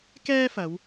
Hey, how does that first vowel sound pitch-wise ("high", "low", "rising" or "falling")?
high